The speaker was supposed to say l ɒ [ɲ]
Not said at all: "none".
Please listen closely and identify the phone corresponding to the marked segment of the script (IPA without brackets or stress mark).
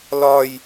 j